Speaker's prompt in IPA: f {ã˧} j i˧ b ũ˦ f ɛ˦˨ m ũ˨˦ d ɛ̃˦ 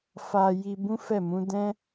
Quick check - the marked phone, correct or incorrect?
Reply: incorrect